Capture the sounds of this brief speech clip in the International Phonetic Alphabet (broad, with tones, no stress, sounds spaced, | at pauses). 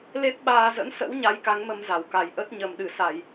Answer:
l e˦˥ p̚ ɓ aː˧ z ə̰˧˥ n s ə̰˧˥ w ɲ a˧ j k a˨˦ ŋ m ə˧ m z a˧˩ w k a˨˩ j ʔ ə˦˥ t̚ ɲ ə˨˩ m ɗ ɨ˧˩ s a˧˩˨ j